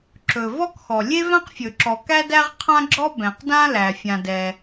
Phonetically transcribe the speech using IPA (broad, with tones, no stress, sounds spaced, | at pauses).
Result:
ǁ ɵ˩ v ɔ˥ k x ɔ˩ lʲ e˥ v ã˥ q fʲ ɵ˩ ǁ ɔ˩ k æ˥ d æ˥ ʁ qʰ ã˥ ɡ͡ǁ ɔ˥ b ɛ̃˩ q d ã˥ l æ˩ fʲ ã˩ d ɛ˩